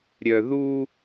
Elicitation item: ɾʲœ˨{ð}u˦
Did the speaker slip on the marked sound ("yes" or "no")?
no